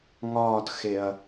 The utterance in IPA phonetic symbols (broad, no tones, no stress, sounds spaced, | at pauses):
ŋ ɒː t x e ɐ̯